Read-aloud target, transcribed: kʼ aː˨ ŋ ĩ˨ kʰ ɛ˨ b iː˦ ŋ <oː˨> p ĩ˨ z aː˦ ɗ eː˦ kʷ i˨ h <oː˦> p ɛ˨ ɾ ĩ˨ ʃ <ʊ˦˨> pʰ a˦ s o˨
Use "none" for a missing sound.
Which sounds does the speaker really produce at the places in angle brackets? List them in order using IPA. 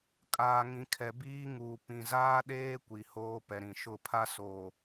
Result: uː˨, oː˦, ʊ˦˨

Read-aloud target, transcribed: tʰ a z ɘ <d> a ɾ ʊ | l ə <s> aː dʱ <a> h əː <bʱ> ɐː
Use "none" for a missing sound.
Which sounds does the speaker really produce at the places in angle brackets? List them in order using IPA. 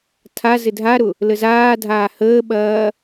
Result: dʱ, z, aː, ɓ

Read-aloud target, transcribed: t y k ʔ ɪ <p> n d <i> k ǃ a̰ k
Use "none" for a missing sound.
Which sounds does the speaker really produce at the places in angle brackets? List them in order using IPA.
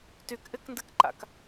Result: k, ɨ

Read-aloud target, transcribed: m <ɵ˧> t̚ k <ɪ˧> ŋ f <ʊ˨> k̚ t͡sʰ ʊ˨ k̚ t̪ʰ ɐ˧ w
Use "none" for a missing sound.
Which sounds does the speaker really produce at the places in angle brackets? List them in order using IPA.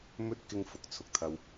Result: ɵ˧, ɪ˧, ʊ˨

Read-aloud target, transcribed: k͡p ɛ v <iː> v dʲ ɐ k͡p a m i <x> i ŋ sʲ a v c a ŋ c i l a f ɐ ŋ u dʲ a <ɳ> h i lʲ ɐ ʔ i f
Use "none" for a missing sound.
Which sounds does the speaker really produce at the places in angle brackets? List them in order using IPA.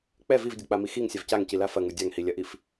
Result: i, x, ŋ

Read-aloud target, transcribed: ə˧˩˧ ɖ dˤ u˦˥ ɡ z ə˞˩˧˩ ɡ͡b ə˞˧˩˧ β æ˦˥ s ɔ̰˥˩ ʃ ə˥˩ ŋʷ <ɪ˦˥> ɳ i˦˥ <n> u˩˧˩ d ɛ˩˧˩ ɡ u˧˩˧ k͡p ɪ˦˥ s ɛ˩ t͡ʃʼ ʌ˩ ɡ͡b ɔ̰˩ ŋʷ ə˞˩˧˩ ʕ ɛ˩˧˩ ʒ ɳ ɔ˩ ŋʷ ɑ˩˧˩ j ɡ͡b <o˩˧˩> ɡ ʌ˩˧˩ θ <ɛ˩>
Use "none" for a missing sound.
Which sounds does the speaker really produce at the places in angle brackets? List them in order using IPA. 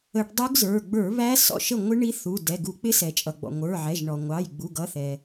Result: ɪ˦˥, θ, u˩˧˩, ɛ˩

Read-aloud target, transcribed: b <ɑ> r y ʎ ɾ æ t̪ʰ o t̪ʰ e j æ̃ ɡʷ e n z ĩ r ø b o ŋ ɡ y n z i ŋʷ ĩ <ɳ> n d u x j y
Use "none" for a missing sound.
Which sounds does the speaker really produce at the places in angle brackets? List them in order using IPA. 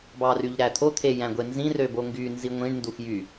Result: ɑ, ɳ

